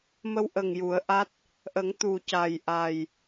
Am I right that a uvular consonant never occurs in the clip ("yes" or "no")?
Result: yes